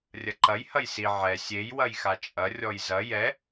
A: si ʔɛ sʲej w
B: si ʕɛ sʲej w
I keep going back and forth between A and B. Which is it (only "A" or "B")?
B